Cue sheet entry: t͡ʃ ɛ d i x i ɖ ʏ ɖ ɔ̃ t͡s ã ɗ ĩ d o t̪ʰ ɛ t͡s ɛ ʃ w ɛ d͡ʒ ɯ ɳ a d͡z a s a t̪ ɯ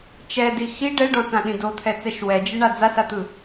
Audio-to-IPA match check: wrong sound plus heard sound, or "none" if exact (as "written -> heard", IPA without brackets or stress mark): ʏ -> ɛ